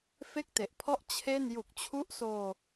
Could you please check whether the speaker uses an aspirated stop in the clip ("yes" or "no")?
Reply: yes